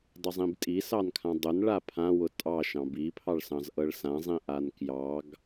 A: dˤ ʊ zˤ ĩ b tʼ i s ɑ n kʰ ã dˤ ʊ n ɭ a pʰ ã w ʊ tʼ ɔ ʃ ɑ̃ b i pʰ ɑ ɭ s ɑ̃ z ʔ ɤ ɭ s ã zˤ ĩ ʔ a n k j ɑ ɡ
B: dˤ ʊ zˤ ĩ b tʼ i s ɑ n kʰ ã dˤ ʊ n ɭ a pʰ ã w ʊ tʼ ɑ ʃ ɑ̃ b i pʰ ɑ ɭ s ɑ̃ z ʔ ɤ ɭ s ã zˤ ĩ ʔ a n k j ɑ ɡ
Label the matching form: B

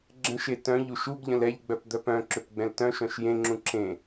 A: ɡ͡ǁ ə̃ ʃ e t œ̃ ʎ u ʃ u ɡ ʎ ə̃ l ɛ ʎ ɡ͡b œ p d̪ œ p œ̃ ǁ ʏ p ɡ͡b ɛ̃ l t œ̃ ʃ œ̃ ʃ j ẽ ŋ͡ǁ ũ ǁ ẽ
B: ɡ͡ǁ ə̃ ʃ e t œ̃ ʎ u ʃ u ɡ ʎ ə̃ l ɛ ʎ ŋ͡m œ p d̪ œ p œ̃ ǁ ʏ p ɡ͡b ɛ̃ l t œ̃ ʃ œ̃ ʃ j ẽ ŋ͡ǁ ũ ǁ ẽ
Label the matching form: A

